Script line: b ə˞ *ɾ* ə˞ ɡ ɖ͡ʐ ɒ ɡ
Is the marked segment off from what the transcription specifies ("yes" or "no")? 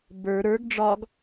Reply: no